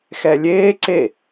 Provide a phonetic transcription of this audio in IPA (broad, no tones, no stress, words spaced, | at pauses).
xɛlʲeː ǀe